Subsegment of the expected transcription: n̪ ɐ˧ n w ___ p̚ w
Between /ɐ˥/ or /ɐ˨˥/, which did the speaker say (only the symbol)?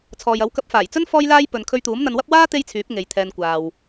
ɐ˥